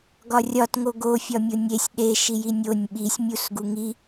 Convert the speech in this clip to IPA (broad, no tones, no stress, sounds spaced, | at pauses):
ɡ ɒ rʲ ɒ t ŋ o ɡ o fʲ ɒ mʲ o nʲ e sʲ ɗ e ʃ i j i nʲ o nʲ ɓ i sʲ mʲ u s ɡ u ŋ i